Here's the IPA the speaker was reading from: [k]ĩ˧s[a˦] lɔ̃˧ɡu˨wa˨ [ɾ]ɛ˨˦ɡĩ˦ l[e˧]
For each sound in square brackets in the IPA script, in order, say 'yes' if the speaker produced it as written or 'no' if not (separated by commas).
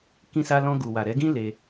yes, no, yes, yes